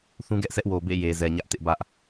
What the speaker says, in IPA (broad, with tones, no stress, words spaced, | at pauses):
θũ˦ɡɛ˦ʔsʰɛ˦ʔwo˨ bḛ˦˨je˨zɛ˨ ɲä˦ʔtɪ˦ʔbä˦ʔ